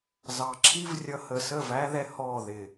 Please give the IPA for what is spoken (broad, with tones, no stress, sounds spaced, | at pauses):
z ɑ˨ ǁʰ i˦ v rʲ ʌ˧ h ə˨ s ə˦˨ v æ˦ ð ɛ˧ h ɔ˦˨ ð ɪ˨